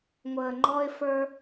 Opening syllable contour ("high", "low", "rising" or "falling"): low